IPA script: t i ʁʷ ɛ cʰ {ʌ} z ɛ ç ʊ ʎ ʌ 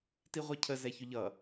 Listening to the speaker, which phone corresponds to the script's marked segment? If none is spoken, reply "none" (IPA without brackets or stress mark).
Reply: ə